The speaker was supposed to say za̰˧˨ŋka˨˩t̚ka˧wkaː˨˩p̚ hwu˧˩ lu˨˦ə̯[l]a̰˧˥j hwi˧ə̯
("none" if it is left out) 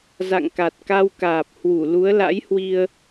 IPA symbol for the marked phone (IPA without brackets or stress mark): l